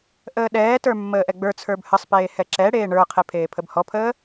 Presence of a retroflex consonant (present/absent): present